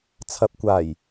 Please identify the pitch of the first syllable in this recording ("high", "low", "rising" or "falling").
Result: low